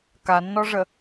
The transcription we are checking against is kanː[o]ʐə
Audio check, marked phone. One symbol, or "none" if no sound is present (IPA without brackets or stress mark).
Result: ɔ